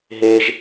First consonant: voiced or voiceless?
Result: voiced